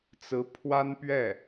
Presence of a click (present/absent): absent